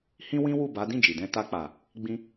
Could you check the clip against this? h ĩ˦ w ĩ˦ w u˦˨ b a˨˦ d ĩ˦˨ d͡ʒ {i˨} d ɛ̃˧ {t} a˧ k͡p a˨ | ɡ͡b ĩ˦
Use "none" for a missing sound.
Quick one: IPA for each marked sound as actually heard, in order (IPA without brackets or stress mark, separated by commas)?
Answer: i˨, t